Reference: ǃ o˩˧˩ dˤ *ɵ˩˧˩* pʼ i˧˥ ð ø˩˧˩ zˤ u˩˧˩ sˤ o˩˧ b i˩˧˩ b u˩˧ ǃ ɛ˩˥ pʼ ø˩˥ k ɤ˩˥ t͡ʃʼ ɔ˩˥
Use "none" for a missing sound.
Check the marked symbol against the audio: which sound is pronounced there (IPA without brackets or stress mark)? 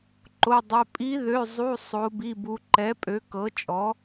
ɵ˩˧˩